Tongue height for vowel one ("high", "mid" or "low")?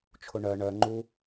high